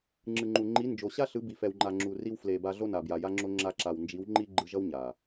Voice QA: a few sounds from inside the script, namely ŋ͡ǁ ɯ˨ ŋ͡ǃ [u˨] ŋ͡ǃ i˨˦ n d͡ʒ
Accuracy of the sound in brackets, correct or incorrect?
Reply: correct